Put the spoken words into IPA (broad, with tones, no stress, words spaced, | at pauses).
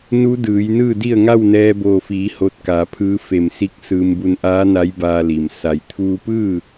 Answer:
nu˧˥dɯː˩˧j nɯː˥˨di˥˨ə̯ ŋa˥˨wnɛː˧boː˧˩fiː˩˧ ho˧t̚ka˩˧pʰɯː˧˥ fe˧˩msi˧˥k̚sɯː˧m bu˧nʔaː˧˥na˧˥j baː˧li˩m sa˩jt̪ʰuː˧pɯː˥˨